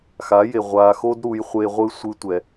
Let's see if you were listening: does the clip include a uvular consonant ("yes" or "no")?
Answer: yes